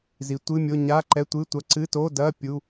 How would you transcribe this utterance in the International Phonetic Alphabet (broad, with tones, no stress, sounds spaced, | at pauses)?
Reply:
z i˩˧ tʷ ɨ˧˥˧ mʲ o˧˥˧ ɲ a˧˥˧ ǃ ɛ˧˥˧ tʷ ɨ˧˥˧ tʷ ɐ˧˥˧ ǀ ɨ˧˥˧ t o˧˥˧ d ɐ˧˥˧ pʲ u˧˥˧